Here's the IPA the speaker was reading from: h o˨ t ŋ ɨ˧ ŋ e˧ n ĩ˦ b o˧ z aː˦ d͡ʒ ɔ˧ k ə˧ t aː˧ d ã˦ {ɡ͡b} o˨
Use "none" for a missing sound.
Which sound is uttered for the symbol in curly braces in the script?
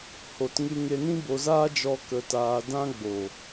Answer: ɡ͡b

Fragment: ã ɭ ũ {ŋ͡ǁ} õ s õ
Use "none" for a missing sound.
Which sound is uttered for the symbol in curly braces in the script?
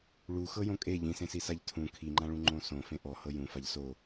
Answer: ŋ͡ǃ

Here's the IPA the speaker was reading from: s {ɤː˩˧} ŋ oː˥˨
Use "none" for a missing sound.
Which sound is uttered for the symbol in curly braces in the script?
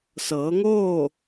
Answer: ɤː˩˧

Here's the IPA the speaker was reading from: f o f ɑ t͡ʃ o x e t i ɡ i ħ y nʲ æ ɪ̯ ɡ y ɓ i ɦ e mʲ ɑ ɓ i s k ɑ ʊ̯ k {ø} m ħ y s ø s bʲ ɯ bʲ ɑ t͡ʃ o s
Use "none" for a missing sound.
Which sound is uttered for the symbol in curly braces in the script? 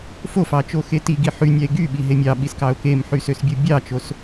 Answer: e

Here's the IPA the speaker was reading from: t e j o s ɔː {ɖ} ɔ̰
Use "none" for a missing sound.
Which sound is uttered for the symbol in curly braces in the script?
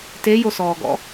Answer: ɡ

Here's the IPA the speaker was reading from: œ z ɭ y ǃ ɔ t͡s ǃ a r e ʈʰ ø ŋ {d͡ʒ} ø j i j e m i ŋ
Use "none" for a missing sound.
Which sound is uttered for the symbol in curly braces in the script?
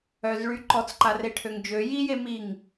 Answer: d͡ʒ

